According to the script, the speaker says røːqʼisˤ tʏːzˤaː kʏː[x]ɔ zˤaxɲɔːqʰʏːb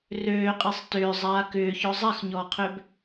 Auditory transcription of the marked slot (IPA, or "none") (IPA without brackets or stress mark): ç